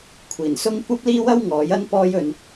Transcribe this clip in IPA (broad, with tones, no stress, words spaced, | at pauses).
kʷʰiː˨˩nsʊ˥ŋ kʷɐ˥p̚liː˥wɐ˥w ŋɔː˨˥jɐ˥n pɔː˥jɵ˧n